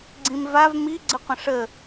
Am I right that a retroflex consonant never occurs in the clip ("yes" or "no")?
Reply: no